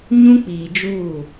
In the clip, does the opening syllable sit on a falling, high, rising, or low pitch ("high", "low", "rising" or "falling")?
high